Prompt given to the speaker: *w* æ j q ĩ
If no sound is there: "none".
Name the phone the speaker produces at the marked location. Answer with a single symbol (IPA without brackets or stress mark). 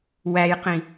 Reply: w